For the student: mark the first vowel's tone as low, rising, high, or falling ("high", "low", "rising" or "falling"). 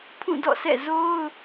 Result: falling